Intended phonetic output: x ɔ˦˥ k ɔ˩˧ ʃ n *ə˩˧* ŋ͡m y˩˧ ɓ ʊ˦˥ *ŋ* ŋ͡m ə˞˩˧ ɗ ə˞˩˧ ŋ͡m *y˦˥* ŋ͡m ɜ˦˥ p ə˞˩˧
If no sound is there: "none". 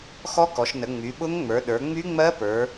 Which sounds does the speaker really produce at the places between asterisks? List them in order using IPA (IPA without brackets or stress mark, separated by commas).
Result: ə˩˧, ŋ, y˦˥